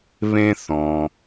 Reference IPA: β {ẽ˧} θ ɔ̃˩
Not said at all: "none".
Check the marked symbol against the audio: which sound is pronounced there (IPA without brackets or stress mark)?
ẽ˧